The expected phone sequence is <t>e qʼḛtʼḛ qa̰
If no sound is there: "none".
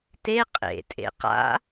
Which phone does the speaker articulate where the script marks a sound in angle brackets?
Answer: t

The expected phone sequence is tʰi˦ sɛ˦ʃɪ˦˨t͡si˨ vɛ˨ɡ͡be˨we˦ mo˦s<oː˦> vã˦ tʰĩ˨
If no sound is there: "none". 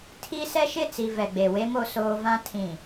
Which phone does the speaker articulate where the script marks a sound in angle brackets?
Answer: oː˦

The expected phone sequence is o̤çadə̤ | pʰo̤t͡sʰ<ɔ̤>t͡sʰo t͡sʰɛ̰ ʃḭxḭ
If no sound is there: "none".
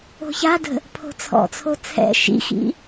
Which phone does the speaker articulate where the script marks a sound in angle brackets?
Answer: ɔ̰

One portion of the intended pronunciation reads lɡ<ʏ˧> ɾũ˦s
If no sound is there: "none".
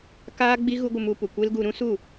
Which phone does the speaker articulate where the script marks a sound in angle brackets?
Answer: u˧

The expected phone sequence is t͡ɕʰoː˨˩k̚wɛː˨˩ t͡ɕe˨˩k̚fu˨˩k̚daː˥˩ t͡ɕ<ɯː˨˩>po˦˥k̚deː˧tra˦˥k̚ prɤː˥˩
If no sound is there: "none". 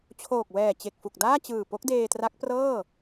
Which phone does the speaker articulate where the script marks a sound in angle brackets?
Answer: ɯː˨˩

